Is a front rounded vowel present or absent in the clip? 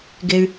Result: present